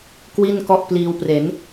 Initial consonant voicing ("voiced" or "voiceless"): voiceless